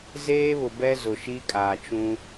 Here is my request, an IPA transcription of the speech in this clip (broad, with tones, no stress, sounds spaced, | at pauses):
z eː˦ β ʊ˨ b ɛ˦ z ʊ˨ ʃ i˦ kʼ aː˨ t͡ʃ ũ˦